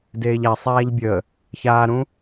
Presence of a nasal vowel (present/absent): present